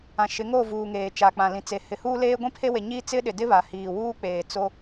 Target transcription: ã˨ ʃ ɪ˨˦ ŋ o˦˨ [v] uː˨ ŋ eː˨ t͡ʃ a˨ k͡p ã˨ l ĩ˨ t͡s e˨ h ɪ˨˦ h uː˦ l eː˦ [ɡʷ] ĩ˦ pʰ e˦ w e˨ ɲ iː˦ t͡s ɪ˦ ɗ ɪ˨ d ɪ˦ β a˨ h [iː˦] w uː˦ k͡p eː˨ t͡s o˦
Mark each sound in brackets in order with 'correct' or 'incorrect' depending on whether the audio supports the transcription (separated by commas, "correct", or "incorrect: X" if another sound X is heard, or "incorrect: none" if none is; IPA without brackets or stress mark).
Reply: correct, correct, incorrect: iː˨